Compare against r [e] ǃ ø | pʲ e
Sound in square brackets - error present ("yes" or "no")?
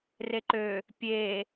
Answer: no